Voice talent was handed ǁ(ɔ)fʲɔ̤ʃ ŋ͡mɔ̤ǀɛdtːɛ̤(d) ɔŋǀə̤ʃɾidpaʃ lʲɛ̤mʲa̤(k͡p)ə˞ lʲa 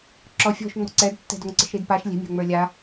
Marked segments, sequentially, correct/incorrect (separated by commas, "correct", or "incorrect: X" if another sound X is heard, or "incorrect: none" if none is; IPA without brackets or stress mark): correct, correct, incorrect: ŋ͡m